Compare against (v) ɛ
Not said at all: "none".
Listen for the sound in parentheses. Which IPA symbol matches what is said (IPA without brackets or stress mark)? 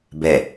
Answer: b